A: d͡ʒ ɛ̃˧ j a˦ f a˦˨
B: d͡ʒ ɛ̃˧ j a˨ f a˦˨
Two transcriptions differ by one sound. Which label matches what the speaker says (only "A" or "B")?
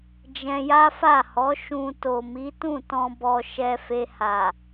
A